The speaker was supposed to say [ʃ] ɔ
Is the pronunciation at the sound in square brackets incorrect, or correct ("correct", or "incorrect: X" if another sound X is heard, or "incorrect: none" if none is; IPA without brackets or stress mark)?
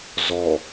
incorrect: z